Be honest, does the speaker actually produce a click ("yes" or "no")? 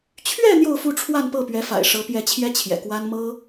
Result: no